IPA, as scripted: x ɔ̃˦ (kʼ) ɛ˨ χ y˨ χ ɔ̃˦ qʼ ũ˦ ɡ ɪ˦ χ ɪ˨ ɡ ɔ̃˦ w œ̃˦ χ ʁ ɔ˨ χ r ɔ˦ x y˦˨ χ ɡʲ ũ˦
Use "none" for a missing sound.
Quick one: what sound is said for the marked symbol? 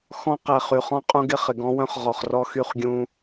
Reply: q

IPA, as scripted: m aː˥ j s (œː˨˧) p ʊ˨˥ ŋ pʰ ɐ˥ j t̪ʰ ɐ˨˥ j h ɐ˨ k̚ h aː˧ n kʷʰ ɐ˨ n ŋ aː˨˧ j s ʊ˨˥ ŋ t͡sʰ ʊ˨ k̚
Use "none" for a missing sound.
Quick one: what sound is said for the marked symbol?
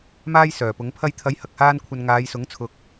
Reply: œː˨˩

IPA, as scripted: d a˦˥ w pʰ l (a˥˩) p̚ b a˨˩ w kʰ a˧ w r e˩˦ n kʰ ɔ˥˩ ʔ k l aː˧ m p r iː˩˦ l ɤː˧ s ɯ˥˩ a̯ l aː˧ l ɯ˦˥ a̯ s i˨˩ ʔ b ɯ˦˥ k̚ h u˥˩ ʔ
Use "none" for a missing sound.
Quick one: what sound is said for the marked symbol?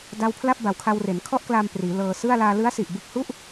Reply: a˥˩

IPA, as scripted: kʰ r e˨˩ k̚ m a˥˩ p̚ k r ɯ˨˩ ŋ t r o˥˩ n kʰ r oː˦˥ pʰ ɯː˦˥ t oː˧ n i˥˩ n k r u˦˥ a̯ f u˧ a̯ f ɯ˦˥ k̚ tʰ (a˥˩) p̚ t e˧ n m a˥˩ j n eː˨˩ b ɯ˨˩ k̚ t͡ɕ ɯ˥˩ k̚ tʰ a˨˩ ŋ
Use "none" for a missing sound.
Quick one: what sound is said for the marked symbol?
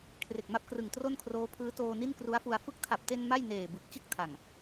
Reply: a˨˩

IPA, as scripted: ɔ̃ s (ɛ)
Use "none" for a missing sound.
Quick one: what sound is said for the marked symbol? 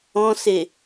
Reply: e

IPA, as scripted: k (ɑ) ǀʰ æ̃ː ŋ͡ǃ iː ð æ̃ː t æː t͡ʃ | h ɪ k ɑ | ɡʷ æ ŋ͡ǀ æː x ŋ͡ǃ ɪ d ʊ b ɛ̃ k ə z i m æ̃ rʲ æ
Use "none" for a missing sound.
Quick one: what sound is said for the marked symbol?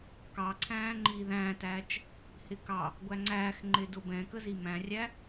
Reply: ɑ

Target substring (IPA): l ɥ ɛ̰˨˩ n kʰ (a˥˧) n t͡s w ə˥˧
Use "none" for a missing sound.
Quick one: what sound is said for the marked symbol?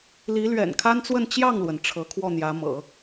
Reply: a˥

